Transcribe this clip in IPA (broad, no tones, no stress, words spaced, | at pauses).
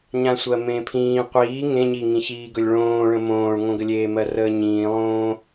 ɲãsʷɜmẽːpʰĩː qʷiː ŋẽ ɲiŋĩçiːɡɵlʲ ɭõːɭə̃ mõːɭŋõɡəlʲeː mɜrəːɲĩːlˠõː